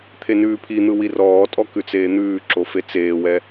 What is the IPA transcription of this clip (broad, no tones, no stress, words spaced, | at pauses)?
t̪ʰenʉːpʰin̪ɯ wirɔːtʼɔ kʉt͡seːn̪ʉːǁo fet͡seːwɛ